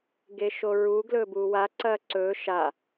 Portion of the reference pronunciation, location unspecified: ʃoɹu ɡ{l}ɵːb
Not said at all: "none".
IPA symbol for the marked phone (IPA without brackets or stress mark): l